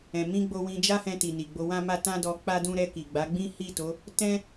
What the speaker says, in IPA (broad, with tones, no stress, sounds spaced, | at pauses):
ɛ̃˨ m ĩ˧ ɡ͡b o˧ w ĩ˧ d͡ʒ a˦ h ɛ̃˧ t i˨ n i˨ ɡ͡b o˧ w ã˦ m a˦ t ã˦ d ɔ˧ k͡p a˦ d ũ˦ ɾ ɛ˧ k i˨ ɡ͡b a˨˦ ɡ͡b ĩ˦ h i˦˨ t o˨˦ | t ɛ̃˦